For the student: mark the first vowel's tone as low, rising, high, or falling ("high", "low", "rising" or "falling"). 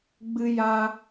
high